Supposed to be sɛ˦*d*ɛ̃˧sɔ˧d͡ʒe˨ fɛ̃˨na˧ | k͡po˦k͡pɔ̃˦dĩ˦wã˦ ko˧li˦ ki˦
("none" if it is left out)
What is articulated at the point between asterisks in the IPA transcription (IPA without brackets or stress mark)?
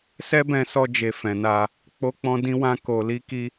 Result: b